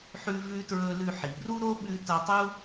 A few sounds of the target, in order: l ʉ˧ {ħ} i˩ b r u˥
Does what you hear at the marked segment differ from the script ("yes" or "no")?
no